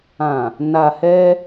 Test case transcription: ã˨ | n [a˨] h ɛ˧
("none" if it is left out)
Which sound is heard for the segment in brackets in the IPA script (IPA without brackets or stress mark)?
a˨